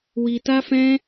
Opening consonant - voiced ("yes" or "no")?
yes